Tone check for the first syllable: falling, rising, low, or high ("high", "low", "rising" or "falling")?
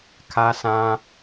low